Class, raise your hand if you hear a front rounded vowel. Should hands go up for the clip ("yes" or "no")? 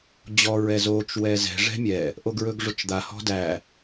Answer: no